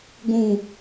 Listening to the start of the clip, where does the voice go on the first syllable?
low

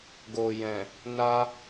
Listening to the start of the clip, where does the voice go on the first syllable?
low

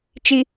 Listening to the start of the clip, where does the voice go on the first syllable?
high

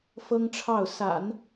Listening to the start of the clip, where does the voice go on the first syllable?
high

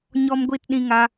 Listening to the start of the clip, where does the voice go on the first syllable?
high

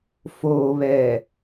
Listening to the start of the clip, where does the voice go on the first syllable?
low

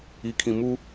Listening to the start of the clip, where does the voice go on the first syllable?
low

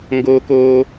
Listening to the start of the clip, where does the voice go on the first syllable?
high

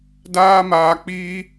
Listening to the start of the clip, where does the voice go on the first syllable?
high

